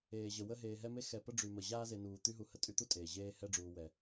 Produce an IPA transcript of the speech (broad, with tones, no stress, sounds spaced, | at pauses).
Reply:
eː˩ ʑ ə˩ w ə˦ ɦ eː˨ ɦ ɛ˦ m e˦ x ɛ˨ p ə˦ ɖ͡ʐ y˨ m ə˩ ʑ aː˦ z e˨ n uː˩ t̪ y˦ ɦ u˨ h ə˦ tʼ y˦ t̪ u˥ tʼ eː˩ ʑ eː˦ h ɛ˦ ɖ͡ʐ uː˨ w ɛ˩